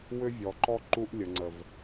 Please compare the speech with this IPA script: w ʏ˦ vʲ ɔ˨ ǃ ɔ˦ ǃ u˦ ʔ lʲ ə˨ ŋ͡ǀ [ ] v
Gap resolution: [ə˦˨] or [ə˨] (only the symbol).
ə˨